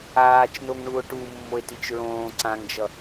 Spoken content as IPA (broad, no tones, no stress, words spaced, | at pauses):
aːt͡ʃnoŋɳuo̯ ʈumːoe̯tit͡ʃ ɹõː ǀãŋd͡ʒʌ